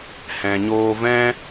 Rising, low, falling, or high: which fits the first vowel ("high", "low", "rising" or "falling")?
low